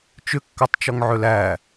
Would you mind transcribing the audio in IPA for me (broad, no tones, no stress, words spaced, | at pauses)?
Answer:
t͡ʃʏkːatˤt͡ʃɔŋ ʕʏlæ